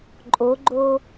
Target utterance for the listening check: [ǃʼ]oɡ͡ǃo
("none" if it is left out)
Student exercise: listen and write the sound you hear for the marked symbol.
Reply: ǃʼ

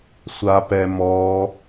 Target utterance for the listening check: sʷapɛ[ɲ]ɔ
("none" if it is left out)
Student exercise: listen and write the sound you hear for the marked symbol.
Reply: m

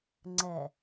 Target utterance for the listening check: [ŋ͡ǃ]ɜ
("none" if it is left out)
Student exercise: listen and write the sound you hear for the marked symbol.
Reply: ŋ͡ǀ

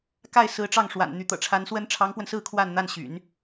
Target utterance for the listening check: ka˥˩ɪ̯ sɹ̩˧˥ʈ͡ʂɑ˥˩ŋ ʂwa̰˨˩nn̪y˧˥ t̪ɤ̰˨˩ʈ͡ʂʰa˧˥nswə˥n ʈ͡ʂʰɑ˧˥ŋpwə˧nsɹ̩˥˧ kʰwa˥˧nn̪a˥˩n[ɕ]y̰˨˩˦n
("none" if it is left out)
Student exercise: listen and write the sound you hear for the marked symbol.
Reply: ɕ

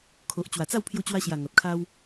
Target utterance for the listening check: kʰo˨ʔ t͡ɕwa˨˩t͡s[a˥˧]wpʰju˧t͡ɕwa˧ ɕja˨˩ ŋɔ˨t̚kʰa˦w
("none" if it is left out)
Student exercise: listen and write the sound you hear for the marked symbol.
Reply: a˥˧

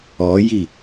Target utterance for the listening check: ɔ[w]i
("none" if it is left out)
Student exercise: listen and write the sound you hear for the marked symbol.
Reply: j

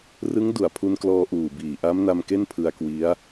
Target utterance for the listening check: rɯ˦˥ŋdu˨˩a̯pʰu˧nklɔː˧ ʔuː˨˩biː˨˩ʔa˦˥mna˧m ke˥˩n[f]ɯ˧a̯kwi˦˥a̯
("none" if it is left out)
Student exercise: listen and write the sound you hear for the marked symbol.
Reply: pʰ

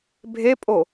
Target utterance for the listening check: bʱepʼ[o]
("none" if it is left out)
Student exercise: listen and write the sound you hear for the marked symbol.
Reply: o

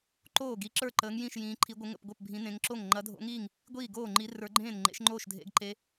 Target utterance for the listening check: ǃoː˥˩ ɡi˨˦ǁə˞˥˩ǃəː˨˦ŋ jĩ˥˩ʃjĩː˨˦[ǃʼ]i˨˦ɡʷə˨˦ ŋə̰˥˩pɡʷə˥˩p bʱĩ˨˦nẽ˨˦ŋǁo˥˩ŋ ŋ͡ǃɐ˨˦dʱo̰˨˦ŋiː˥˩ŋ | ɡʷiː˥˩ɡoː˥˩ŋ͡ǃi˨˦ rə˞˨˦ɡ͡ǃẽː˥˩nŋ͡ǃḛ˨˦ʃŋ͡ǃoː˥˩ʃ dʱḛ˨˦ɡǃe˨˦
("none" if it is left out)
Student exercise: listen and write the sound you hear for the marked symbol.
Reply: ǃʰ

